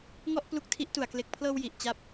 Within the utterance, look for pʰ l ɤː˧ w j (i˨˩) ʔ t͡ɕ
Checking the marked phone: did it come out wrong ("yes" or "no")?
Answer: no